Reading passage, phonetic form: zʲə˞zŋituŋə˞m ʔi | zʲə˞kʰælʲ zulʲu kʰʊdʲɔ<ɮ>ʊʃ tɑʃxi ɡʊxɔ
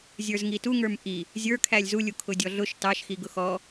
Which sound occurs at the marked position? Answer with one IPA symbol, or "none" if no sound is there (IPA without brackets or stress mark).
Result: ɮ